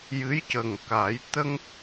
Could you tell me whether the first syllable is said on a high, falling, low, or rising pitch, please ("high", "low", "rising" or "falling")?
rising